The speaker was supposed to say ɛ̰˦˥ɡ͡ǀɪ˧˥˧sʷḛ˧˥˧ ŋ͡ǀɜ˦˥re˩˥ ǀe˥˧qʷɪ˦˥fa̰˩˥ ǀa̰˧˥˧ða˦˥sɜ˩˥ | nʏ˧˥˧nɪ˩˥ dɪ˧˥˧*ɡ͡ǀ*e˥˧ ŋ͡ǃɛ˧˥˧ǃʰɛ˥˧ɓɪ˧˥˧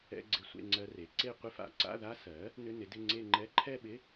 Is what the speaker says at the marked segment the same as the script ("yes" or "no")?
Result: no